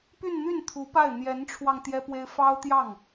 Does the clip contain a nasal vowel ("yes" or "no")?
no